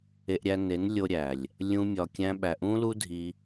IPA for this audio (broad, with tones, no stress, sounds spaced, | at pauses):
e˧ ʔ ɾʲ æ˧ n e˨˦ n lʲ o˧ ɾʲ æ˨ lʲ | lʲ ũ˦ mʲ ɒ˧ kʲ æ̃˦ ɓ æ˨ ʔ ũ˦ l u˦ dʱ i˧